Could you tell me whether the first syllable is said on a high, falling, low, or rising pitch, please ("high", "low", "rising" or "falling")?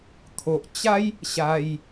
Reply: low